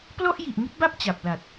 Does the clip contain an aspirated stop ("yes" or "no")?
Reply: no